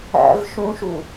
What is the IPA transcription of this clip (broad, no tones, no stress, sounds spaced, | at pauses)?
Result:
æ̰ v ʃ ũ ʃ u